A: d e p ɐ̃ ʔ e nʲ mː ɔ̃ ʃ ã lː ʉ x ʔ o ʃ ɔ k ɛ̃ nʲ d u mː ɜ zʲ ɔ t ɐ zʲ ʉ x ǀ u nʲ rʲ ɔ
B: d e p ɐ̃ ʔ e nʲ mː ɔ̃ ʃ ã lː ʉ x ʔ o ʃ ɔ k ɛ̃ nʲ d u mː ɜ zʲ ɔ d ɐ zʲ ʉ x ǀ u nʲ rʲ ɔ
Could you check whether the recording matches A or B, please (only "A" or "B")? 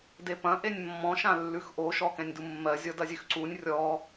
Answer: B